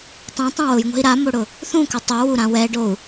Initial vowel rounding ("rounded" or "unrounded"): unrounded